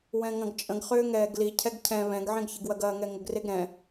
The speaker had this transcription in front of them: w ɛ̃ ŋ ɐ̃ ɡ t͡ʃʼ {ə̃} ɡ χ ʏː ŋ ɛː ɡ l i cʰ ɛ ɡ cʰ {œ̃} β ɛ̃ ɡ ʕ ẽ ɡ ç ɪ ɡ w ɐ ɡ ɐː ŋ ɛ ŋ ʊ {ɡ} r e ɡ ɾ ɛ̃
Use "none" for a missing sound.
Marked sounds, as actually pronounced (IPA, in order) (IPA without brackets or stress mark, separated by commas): ə̃, ɛ̃, ɡ